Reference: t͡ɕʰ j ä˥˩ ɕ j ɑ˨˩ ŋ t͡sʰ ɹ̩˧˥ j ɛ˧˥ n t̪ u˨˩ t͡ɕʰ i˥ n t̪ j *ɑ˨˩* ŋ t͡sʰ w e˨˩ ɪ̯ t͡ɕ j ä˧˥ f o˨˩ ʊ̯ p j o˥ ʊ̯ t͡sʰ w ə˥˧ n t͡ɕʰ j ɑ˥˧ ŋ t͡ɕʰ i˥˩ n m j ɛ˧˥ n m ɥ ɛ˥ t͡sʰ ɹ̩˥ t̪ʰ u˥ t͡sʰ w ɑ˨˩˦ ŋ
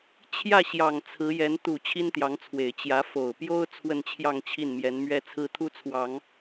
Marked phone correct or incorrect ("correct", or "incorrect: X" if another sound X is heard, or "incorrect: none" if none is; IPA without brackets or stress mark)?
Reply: incorrect: ɑ˧˥